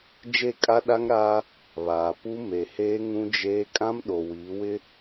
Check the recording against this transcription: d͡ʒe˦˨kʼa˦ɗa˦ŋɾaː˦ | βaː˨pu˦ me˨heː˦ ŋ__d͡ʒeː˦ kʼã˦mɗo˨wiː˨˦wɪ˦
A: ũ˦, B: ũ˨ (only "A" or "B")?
A